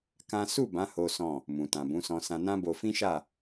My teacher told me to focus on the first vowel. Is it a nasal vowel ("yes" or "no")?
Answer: yes